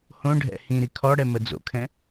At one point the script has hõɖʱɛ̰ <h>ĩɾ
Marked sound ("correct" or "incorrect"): correct